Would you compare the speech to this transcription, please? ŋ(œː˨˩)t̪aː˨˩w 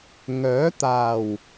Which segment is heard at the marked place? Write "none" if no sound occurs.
œː˨˥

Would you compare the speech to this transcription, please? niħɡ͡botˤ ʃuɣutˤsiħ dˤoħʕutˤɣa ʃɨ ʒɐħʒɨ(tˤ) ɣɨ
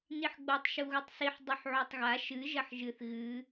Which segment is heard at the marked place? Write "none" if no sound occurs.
θ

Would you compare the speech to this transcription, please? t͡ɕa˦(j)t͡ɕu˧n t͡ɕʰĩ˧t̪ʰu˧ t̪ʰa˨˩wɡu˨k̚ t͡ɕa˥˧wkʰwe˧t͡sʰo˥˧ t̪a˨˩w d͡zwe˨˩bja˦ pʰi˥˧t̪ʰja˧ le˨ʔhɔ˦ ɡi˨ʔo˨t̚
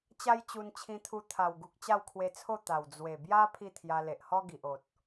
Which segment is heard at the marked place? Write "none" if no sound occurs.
j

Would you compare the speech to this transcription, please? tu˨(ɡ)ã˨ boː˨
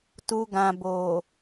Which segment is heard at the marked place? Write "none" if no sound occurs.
ɡ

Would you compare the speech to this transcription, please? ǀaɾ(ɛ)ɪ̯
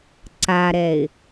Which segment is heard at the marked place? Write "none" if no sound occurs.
ɛ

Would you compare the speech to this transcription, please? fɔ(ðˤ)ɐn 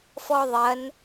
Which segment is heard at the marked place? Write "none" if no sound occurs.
ðˤ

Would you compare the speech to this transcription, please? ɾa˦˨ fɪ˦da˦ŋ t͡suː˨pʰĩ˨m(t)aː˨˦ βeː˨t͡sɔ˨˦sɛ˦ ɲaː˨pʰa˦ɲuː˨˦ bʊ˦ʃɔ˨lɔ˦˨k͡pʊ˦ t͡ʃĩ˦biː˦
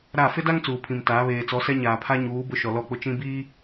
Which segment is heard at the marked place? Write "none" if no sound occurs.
t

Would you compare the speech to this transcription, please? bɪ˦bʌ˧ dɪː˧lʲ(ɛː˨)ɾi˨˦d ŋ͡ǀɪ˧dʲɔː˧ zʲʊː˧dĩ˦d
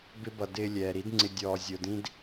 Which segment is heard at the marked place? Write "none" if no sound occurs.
ɛː˨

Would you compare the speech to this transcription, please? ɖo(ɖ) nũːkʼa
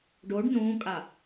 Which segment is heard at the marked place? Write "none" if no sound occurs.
ɖ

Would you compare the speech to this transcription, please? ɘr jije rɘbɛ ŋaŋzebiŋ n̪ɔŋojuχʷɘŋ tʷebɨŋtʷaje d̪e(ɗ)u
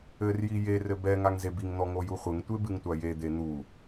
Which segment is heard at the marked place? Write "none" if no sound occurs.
n̪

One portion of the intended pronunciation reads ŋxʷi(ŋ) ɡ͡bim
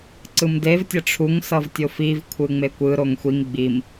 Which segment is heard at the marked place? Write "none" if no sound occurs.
ŋ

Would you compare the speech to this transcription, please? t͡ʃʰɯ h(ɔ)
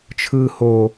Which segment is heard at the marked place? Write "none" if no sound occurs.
o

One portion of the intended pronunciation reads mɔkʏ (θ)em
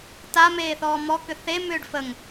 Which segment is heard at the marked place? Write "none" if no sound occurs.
θ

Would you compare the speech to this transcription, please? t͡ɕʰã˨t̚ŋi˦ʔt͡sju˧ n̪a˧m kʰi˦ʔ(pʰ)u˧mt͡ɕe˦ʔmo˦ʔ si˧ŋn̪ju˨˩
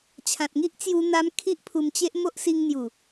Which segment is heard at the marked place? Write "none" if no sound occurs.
pʰ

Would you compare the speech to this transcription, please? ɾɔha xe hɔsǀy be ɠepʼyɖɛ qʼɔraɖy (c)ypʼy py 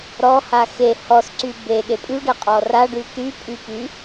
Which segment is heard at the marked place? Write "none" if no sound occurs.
t̪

